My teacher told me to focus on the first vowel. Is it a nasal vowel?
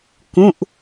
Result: yes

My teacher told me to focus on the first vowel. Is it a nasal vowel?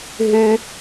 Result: no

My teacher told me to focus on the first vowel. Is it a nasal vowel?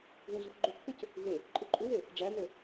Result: yes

